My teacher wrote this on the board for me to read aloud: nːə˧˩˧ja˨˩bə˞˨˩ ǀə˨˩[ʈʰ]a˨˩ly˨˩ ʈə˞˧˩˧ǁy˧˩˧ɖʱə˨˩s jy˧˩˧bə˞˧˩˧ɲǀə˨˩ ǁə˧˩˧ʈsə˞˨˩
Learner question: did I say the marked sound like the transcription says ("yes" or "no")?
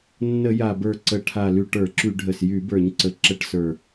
yes